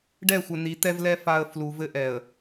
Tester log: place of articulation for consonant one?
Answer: retroflex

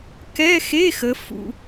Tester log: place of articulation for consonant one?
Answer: velar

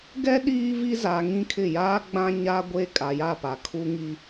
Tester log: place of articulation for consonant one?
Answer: velar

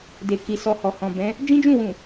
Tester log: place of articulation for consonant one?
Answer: alveolar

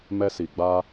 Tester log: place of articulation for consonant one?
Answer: labial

